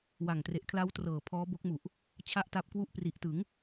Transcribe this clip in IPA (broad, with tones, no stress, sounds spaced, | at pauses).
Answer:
w a˨˩ ŋ t r e˨˩ ʔ kʰ l a˦˥ w t r ɤː˨˩ pʰ ɔː˦˥ b o˦˥ k̚ m u˨˩ ʔ | t͡ɕʰ a˥˩ ʔ t a˦˥ p̚ k w u˥˩ ʔ p r i˨˩ ʔ t ɯ˩˦ ŋ